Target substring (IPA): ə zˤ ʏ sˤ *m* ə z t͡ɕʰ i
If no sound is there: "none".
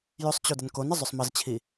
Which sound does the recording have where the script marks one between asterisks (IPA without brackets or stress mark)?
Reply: m